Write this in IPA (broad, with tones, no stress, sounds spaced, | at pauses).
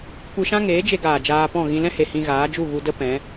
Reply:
kʷ ɨ˧ ʃ ã˦ ŋ eː˨˦ d͡ʒ e˧ ɡ aː˨ d͡ʒ aː˧ p ɔ̃˦˨ ɣ ĩ˧ l ɛ̃˦ h e˨ h ĩ˧ ɣ aː˨˦ d͡ʒ u˦˨ ɣ u˧ d ə˦ p ɛ̃˨˦